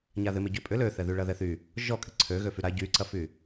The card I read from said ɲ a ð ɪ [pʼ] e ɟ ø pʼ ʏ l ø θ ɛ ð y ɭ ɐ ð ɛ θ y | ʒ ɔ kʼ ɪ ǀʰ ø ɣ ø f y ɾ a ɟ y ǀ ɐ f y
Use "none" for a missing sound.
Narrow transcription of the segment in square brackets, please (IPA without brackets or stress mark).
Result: m